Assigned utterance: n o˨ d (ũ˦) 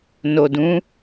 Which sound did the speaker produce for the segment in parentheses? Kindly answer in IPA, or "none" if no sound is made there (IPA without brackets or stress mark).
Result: ũ˨˦